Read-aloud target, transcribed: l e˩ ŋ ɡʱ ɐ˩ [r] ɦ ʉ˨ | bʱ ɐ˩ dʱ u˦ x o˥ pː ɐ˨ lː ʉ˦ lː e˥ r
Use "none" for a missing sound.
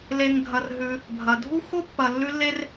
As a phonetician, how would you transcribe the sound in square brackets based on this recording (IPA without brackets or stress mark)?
r